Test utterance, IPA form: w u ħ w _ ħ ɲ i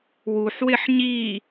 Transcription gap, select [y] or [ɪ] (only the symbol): ɪ